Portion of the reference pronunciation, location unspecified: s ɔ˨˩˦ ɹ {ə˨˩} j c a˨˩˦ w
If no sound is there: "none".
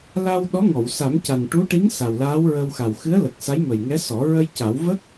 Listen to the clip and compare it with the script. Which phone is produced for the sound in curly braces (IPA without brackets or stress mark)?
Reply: ə˧